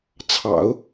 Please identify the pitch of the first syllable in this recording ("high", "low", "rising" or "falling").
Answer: low